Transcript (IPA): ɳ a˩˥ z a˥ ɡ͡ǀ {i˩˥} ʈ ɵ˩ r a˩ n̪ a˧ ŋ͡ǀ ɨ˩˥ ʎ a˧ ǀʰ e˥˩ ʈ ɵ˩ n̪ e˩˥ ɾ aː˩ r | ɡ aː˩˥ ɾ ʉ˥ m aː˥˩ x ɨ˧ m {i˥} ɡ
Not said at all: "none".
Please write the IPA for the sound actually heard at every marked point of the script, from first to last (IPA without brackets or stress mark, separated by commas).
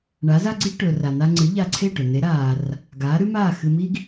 i˥, i˥